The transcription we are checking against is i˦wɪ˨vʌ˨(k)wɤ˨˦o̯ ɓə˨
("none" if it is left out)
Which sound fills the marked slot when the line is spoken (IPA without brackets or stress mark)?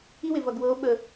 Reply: ɡ